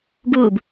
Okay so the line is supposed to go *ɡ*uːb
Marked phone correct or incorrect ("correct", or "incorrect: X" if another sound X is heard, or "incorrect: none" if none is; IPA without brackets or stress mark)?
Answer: correct